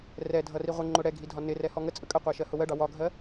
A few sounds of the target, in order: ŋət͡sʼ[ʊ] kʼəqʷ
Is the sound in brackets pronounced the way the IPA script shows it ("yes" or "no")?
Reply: no